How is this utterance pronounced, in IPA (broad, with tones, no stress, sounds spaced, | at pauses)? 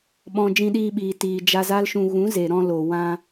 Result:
ɓ ɔ̃˨ d͡ʒ ĩ˧ ɗ iː˧ ɓ iː˨ t iː˨ d͡ʒ a˧ z a˦ l ʃ ũ˧ ɣ ũ˨˦ z e˨ ɾ ɔ̃˧ l o˨ w ã˧